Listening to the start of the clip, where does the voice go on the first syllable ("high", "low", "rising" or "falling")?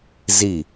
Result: falling